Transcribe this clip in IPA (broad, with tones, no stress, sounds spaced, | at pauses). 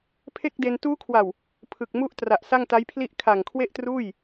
pʰ e˥˩ k̚ d e˧ n t uː˦˥ kʰ w a˨˩ w | pʰ ɯ˨˩ k̚ m u˦˥ ʔ t r a˨˩ ʔ s a˥˩ ŋ t a˦˥ j pʰ l i˥˩ ʔ kʰ a˨˩ ŋ kʰ w e˥˩ ʔ t r uː˥˩ j